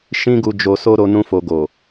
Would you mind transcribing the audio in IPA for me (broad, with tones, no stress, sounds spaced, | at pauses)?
ʃ ĩ˦ ɡ u˧ d͡ʒ o˧ s o˦ ɾ o˦ n ũ˦ f o˧ ɡ o˨